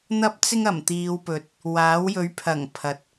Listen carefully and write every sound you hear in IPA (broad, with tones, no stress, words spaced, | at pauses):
n̪ɐ˥p̚t͡sɪ˥ŋ ɐ˨˩mt̪iː˨˧wpɵ˨t̚ | waː˨˥wjɵ˨˥ɥpʰɐ˨˩ŋ pʰɐ˨t̚